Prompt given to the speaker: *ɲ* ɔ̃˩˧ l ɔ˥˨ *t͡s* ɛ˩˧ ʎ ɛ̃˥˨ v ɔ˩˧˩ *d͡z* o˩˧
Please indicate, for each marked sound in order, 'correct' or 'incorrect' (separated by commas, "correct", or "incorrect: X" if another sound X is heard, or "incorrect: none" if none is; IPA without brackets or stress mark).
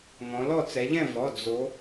incorrect: ŋ, correct, correct